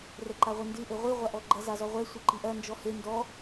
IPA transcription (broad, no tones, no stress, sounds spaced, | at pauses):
r ɛ ǃ a ʁʷ ɨ n d ɨ ʔ ɘ ʁʷ i ʁʷ a ʔ ɔ ɡ͡ǃ ɐ z a z ɔ ʁʷ ɛ sʷ ɘ ǃ i ʔ ɐ n d͡ʒ ɔ h e n d ɔ